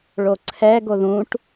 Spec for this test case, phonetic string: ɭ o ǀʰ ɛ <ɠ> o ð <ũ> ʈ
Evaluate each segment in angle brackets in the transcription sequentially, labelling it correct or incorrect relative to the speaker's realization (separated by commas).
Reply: incorrect, correct